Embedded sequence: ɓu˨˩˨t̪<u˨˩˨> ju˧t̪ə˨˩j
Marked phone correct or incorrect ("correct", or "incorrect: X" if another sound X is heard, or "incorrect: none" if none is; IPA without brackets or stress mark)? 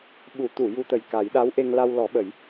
correct